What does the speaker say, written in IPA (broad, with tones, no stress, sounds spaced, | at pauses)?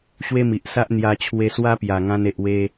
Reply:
ɕ w e˦ m i˨ ʔ s a˦ ʔ n̪ j a˧ t͡ɕʰ w e˧ s w a˦ p j a˨˩ ŋ ã˧ n e˨ ʔ w e˧